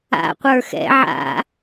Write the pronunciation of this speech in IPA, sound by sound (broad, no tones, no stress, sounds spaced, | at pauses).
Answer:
a̰ qʷ ə˞ x ɛ̰ ʕ a̰